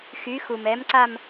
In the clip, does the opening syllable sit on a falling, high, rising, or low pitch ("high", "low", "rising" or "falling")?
rising